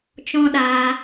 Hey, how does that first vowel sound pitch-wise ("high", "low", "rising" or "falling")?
high